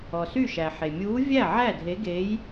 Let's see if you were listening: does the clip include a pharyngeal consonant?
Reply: yes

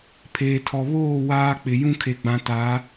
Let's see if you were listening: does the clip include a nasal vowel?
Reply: yes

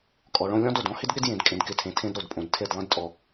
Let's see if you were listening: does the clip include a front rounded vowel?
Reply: no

